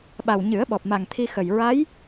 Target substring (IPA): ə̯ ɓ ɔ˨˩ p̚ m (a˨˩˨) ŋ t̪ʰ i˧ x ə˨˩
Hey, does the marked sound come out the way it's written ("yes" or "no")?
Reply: no